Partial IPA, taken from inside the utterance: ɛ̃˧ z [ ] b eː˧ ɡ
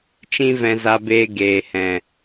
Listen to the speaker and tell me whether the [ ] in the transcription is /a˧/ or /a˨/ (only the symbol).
a˧